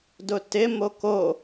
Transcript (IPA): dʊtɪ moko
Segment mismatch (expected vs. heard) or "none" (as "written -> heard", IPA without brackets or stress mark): none